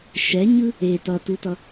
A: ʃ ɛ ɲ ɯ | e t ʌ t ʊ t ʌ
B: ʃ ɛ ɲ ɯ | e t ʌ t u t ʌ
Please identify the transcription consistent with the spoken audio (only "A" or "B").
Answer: B